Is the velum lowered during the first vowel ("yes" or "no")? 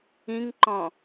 yes